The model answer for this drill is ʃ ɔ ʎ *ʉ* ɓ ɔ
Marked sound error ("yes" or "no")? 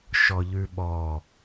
no